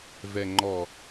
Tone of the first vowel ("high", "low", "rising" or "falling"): low